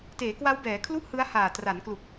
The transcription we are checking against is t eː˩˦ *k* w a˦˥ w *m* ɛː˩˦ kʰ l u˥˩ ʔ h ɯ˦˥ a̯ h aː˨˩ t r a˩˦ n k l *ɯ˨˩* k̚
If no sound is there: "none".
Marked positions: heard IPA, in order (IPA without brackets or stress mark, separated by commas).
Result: k, b, u˨˩